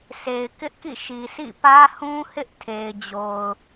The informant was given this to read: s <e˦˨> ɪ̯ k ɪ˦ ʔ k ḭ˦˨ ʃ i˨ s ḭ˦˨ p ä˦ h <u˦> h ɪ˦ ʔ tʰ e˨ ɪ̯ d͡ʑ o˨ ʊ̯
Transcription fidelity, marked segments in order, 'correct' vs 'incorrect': incorrect: e˨, incorrect: ũ˦

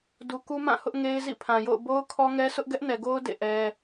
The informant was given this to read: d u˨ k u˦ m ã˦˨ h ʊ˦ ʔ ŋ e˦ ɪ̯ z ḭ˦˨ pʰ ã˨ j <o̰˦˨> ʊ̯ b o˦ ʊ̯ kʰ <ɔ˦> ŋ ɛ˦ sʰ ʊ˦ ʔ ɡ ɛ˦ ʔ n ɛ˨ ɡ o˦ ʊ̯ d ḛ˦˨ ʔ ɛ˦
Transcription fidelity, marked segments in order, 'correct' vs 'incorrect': correct, correct

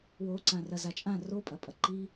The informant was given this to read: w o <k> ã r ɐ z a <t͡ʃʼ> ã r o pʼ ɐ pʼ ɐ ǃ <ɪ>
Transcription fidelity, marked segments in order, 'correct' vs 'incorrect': incorrect: ǀ, correct, incorrect: i

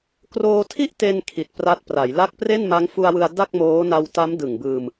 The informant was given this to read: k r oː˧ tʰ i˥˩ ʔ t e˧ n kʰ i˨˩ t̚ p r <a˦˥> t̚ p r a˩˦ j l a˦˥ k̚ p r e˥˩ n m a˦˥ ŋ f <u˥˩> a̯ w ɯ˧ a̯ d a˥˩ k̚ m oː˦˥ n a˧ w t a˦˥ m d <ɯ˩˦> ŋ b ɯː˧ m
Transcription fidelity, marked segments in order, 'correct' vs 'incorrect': correct, incorrect: u˧, incorrect: ɯ˨˩

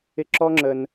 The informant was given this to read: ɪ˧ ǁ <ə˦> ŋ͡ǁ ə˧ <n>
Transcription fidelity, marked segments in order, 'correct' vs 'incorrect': incorrect: ɔ˦, correct

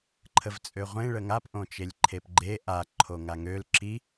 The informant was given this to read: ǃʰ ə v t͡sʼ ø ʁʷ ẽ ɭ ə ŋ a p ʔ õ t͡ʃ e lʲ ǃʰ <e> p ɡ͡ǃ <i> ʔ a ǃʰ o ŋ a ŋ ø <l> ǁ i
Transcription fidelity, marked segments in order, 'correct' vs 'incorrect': correct, incorrect: e, correct

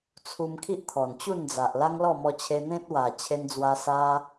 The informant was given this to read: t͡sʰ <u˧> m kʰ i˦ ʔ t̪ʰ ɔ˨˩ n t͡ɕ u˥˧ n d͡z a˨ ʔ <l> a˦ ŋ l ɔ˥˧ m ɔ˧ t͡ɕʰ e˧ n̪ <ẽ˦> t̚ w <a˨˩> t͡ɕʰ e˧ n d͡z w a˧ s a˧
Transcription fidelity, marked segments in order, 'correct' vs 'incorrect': correct, correct, correct, correct

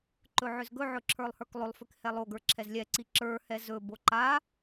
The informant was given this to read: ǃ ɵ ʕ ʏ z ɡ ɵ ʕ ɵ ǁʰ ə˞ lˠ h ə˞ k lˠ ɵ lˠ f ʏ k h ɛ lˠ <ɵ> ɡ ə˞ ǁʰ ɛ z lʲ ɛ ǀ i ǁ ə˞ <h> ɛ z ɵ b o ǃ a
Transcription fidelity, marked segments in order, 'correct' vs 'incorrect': incorrect: o, correct

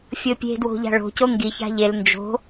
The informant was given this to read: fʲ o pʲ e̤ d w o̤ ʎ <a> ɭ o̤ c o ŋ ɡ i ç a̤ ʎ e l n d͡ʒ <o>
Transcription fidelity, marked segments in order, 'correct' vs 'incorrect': incorrect: a̤, incorrect: o̤

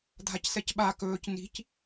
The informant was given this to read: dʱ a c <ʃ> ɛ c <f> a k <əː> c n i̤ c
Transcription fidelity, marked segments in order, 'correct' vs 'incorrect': incorrect: s, incorrect: ɓ, incorrect: ɵː

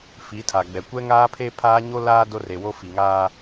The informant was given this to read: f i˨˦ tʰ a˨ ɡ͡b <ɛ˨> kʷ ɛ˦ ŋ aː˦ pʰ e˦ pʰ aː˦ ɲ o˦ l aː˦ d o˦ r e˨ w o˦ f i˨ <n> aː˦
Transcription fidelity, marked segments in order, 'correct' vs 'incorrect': correct, incorrect: ŋ

